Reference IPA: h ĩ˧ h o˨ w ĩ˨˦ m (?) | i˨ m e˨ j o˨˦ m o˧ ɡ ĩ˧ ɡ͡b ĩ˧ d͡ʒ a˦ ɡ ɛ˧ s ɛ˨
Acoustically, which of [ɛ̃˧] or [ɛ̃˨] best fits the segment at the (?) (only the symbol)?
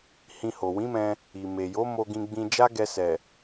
ɛ̃˧